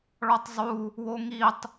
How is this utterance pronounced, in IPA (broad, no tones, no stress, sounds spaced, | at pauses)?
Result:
ɭ ɔ tˤ zˤ u | w o ŋ i tˤ